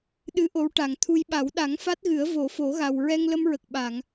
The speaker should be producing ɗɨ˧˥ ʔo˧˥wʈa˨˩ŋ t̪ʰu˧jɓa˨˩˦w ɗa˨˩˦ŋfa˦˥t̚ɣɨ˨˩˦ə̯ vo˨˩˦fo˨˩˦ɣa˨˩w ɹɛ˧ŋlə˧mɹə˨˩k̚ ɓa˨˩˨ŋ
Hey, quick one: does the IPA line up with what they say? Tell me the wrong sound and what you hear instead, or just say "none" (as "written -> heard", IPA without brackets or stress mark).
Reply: none